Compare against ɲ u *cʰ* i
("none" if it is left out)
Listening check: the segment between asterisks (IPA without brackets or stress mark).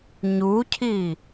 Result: cʰ